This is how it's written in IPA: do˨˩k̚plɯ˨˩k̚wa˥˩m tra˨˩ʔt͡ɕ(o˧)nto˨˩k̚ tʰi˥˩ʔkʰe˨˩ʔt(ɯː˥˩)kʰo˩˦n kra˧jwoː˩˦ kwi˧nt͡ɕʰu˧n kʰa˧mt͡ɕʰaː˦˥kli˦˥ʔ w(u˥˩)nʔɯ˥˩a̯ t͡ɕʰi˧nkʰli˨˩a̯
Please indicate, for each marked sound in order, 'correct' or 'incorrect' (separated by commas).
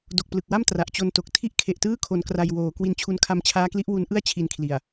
correct, correct, incorrect